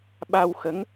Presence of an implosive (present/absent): present